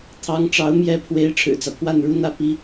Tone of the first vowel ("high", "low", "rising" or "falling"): rising